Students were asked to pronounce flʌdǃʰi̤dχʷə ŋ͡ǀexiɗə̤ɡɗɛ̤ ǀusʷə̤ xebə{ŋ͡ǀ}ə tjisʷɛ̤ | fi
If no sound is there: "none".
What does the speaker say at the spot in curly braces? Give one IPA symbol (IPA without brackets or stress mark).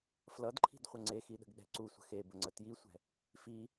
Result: ŋ͡ǀ